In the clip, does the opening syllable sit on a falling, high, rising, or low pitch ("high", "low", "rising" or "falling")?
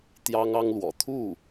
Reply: high